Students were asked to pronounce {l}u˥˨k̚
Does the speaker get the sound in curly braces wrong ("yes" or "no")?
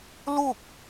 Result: no